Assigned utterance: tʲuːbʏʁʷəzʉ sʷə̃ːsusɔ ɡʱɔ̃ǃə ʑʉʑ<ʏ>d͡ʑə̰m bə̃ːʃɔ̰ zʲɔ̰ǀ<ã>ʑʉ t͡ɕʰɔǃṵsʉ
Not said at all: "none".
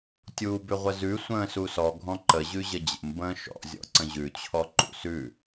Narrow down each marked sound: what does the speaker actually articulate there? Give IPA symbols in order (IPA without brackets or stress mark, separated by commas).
ə, ə̃